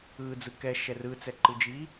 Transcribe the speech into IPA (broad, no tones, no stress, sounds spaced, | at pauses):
ɯː d͡z ɯ k ɛ ʃ ɛ r ɯ t͡s ɛ ǃ ɯ d͡ʒ iː